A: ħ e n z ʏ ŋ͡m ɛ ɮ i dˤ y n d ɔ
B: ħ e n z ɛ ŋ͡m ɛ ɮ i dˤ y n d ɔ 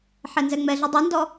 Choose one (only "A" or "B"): B